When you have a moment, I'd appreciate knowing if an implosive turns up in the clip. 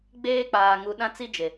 yes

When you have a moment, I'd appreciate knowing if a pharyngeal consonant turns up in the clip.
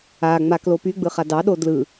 no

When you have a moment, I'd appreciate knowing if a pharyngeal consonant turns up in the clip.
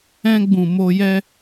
no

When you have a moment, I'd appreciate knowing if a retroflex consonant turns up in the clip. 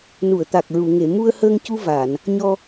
no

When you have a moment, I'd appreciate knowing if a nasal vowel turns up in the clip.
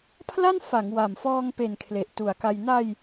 no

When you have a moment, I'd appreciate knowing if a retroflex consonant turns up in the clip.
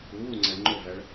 yes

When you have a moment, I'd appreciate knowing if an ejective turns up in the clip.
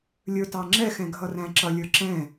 no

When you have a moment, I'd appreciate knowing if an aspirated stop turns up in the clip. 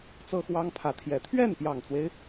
yes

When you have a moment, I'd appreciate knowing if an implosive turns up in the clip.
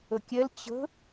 no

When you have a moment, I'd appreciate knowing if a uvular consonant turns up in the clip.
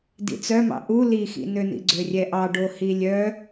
no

